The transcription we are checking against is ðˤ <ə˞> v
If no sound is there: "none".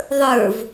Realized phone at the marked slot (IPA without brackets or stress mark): ə˞